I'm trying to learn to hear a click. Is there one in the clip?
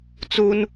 no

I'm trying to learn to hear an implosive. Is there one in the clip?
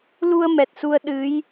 yes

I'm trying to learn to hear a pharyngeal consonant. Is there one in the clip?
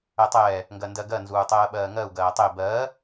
no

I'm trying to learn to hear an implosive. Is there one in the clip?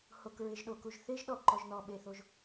yes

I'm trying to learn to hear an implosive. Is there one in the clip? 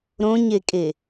no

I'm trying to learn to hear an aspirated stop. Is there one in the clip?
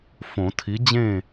yes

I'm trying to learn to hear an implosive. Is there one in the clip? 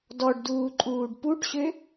no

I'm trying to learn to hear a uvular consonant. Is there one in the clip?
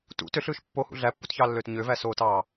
no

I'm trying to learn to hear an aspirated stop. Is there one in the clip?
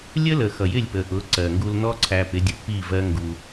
yes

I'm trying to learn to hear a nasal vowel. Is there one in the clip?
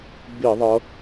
no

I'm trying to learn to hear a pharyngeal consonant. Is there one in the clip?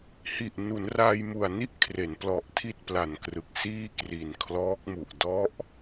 no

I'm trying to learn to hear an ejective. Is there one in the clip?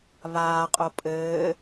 yes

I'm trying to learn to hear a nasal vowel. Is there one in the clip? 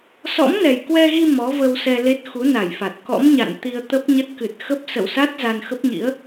no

